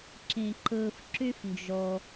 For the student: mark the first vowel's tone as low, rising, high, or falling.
low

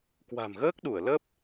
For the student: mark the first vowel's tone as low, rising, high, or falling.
low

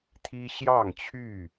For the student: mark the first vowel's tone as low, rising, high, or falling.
high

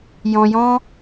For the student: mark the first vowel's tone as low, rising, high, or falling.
low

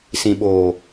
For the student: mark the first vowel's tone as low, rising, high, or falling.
low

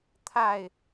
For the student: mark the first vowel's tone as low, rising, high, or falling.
falling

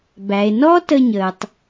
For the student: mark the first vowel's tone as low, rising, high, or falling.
low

